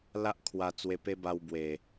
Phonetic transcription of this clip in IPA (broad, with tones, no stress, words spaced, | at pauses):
la˦ʔkʰwa˧t͡swe˧ pe˦ba˧w bwe˨˩